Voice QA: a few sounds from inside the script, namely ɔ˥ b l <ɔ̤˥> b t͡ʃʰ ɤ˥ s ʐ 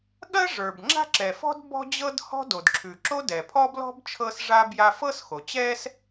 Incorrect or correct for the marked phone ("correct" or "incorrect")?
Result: correct